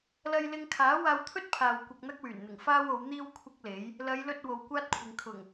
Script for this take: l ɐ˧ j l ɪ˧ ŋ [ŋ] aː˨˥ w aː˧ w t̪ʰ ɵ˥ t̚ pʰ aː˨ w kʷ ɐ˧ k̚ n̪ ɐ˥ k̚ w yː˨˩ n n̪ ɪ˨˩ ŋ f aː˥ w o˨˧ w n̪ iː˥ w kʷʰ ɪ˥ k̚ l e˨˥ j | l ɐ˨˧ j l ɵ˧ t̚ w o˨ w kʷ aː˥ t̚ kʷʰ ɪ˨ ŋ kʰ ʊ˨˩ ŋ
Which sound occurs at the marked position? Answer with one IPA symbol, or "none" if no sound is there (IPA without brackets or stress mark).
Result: kʰ